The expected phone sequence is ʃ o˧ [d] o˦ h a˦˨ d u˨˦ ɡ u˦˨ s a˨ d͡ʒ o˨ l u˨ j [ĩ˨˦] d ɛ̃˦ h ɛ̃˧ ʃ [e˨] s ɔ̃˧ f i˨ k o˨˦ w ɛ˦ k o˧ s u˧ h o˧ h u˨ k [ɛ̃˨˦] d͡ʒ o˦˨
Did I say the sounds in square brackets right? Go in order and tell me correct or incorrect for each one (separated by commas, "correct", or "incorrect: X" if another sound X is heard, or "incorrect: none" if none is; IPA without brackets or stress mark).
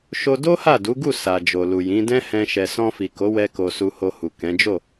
correct, correct, incorrect: ɛ˨, correct